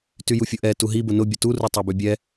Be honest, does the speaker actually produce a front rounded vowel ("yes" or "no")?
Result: yes